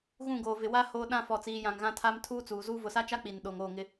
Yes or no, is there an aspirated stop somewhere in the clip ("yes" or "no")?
yes